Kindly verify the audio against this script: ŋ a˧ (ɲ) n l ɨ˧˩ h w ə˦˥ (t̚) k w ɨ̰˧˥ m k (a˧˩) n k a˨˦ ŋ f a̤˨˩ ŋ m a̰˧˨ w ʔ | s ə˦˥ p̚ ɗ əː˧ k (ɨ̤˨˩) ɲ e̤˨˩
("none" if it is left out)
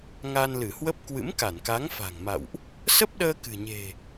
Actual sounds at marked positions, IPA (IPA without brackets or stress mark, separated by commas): none, p̚, a˧˩, ɨ̤˨˩